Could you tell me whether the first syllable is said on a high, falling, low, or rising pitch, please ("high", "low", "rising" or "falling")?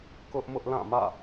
high